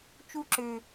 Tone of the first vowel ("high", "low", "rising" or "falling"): high